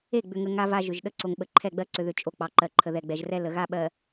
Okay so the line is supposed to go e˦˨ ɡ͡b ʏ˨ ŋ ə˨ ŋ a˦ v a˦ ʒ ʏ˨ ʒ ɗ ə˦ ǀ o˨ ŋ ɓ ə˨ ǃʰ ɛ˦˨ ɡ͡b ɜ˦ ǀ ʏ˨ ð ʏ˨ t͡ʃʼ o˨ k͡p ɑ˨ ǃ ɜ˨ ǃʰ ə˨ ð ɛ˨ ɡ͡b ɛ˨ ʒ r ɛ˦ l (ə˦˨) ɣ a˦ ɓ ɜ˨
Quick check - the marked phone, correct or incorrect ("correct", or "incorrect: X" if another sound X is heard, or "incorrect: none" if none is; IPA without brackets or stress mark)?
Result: incorrect: ə˨